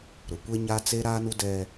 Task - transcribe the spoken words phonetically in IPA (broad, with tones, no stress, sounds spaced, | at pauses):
ɾ ʊ˨ kʷ e˦ ɲ a˦ t͡s e˦ ɾ aː˦ n u˦ d ɛ˦